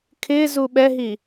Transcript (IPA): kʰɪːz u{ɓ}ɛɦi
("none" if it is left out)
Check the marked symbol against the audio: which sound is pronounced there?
ɓ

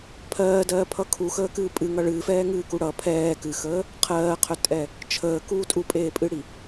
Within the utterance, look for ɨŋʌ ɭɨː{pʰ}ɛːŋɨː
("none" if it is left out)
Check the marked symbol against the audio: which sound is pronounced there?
f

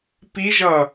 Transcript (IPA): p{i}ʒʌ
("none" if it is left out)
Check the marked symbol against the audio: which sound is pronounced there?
i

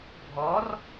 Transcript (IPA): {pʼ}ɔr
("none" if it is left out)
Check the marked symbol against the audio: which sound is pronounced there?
bʱ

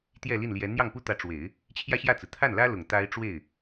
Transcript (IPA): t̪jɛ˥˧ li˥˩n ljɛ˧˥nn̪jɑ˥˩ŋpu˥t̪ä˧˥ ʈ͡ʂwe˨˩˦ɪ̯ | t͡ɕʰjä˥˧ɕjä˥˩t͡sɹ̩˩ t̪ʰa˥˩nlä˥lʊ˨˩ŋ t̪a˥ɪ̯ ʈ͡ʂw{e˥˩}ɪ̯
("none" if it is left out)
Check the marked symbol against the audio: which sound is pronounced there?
e˥˩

